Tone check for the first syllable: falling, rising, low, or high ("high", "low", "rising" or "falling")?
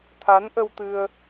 rising